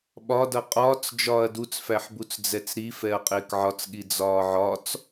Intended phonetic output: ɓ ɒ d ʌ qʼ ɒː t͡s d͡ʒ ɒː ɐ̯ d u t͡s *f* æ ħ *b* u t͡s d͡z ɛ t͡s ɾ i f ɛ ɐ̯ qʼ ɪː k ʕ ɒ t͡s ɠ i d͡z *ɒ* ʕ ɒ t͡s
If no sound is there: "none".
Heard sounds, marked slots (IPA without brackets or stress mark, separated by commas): f, b, ɒː